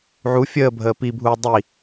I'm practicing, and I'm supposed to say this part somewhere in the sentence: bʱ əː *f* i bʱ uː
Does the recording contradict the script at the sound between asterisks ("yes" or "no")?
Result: yes